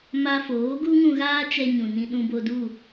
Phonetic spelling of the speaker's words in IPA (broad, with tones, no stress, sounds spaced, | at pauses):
m a˧ f oː˨˦ ɡ u˦ ŋ ũ˧ ɣ aː˦ t͡ʃ ɛ˧ ɲ ũ˨ n ĩ˧ ɗ ũ˧ b o˧ d u˦˨